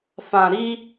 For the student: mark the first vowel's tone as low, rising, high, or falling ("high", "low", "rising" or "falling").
low